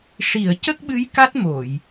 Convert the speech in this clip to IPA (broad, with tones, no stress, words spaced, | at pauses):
ʂi˨˩˨ə̯ cə˦˥k̚ɓɨ˧˥j ka˦˥t̚mo˨˩˨j